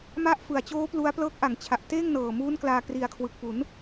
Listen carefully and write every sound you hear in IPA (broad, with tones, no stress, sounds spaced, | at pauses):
m a˦˥ ʔ f ɯ˨˩ a̯ t͡ɕ oː˦˥ p l u˦˥ a̯ p l ɤː˦˥ k̚ ʔ a˩˦ ŋ t͡ɕʰ a˨˩ ʔ t eː˥˩ ŋ n ɤː˨˩ m uː˦˥ n k l aː˧ k r i˨˩ a̯ kʰ w ɯ˨˩ k̚ p u˩˦ n